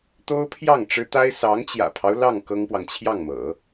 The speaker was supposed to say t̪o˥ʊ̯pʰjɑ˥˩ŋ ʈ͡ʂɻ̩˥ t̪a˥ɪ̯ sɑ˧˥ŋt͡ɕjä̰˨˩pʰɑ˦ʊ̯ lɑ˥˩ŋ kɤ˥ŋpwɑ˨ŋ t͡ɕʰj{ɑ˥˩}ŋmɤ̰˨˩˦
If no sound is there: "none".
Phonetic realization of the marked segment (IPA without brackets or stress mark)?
ɑ˥˩